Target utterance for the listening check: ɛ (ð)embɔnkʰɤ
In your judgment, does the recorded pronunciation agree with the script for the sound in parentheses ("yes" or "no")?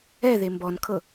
yes